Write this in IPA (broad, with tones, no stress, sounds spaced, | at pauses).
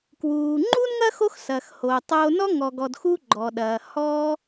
k w uː˩ ŋ͡ǃ u˥ n ŋ ɐ˥ x o˦ x s ɐː˩ x h oː˩ tˤ oː˨ n ɔ˦ ŋ ɔ˨ ɡ ɔ˨ d x u˦ ɡ͡ǃ ɔ˩ ɗ ɐː˩ h ɔː˦